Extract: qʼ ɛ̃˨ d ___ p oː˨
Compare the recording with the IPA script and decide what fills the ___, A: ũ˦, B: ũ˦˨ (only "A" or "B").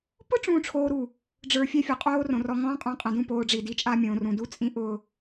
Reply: B